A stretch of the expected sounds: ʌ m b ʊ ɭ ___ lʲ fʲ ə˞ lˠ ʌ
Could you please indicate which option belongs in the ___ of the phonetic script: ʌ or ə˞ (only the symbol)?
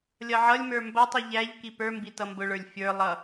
ə˞